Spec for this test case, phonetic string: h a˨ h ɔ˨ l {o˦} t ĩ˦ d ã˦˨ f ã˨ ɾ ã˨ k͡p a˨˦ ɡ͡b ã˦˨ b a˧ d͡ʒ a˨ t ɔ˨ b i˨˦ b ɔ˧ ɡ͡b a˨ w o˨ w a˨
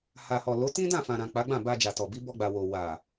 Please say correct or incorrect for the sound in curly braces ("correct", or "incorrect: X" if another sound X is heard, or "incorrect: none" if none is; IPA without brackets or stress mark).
incorrect: o˨˦